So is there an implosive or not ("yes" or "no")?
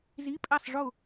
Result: no